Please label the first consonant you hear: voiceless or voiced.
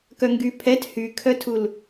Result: voiceless